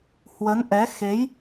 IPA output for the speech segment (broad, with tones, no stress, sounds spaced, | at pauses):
h w ə˨˦ n ʔ ɛ˨˦ x e˨˦ j